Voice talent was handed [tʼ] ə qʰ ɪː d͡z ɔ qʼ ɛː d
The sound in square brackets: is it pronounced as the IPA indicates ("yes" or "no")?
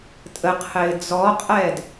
yes